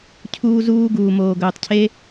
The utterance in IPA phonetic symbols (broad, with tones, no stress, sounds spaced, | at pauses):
cʰ uː˦ z uː˦ ɡ uː˧ m oː˧ ɡ ɵː˧ tˤ cʰ e˦